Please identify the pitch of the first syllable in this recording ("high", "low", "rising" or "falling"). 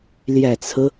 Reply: low